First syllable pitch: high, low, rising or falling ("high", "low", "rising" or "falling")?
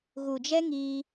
low